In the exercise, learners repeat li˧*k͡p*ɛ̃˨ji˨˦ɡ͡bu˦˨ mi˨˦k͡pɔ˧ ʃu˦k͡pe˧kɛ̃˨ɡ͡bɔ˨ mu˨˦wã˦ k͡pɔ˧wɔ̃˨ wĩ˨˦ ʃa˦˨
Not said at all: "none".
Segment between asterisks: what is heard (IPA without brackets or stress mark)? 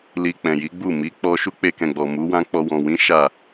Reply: k͡p